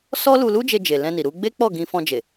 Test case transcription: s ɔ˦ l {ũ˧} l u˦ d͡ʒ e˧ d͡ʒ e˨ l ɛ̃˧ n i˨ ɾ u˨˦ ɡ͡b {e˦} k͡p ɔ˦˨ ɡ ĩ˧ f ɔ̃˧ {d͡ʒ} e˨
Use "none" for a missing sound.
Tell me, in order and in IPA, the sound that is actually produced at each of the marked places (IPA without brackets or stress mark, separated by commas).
u˧, e˦, d͡ʒ